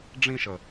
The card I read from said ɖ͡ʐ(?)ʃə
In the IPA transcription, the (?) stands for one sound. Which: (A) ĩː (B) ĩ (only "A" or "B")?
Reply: B